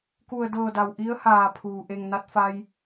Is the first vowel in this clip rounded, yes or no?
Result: yes